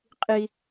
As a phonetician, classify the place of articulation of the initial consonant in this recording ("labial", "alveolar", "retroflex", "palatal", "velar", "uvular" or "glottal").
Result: uvular